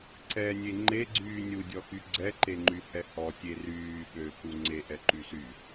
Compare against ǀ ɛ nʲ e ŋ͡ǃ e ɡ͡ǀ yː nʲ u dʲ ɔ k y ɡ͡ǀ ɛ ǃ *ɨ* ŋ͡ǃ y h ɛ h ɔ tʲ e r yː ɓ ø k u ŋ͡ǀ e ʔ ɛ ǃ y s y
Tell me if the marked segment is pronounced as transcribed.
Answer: no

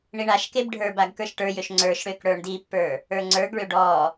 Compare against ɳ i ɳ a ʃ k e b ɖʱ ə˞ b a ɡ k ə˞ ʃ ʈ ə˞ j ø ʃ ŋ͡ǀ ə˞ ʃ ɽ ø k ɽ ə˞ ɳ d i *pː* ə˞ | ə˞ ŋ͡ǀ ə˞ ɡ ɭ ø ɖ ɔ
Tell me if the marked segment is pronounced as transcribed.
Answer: yes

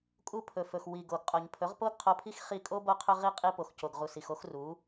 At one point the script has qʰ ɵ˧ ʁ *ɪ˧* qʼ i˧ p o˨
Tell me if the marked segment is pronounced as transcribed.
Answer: no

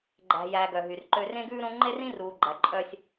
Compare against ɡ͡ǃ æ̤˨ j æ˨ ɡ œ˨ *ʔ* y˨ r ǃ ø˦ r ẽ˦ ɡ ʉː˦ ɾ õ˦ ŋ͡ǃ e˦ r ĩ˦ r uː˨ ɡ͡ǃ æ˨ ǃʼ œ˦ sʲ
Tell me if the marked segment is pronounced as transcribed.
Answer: no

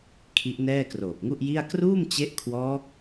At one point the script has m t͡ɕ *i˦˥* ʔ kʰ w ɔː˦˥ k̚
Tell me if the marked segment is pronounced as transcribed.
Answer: no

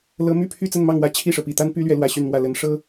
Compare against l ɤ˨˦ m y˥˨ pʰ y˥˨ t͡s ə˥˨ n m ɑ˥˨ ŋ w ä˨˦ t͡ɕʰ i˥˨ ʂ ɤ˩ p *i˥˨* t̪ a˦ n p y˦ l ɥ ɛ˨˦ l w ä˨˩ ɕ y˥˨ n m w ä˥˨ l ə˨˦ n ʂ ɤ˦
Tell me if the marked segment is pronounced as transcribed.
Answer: yes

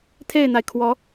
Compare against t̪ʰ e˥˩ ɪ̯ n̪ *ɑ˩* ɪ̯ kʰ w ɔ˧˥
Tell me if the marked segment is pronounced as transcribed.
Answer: no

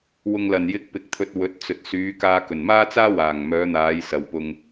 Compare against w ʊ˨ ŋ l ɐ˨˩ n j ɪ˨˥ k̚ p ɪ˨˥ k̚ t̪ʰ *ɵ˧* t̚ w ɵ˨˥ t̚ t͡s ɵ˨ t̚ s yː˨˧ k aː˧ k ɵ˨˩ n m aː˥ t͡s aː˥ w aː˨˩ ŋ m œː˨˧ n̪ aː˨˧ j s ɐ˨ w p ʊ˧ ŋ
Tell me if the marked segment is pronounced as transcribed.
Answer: yes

